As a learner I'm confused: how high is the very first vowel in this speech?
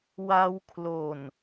low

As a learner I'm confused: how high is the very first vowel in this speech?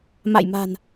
low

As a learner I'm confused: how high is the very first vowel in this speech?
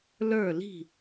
mid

